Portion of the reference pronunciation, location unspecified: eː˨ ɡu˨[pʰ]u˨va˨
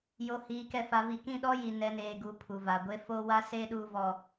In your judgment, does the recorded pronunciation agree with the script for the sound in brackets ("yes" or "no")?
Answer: yes